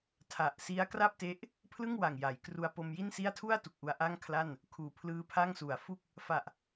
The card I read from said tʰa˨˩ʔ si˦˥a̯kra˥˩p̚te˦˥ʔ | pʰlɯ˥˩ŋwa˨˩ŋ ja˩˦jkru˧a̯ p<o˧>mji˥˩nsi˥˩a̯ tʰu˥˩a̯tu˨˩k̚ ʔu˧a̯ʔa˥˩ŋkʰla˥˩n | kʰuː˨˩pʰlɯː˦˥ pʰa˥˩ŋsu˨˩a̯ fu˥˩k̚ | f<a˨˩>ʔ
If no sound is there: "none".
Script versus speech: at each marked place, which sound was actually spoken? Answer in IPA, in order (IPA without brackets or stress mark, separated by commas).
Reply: o˧, a˨˩